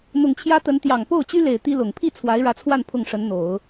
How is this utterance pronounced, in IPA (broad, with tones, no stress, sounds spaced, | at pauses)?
n̪ ʊ˨˩ ŋ t͡ɕʰ j ä˥ t̪ ə˧˥ n t̪ j ɑ˨˩ ŋ p o˥˩ ʊ̯ t͡ɕ y˥ l e˨˩ ɪ̯ t̪ i˥ l ʊ˨˩ ŋ pʰ i˥˩ t͡sʰ w a˧˥ ɪ̯ ɻ ä˧˥ t͡sʰ w a˥˧ n pʰ ʊ˥˩ ŋ ʂ ə˧˥ n n̪ o˨˩˦ ʊ̯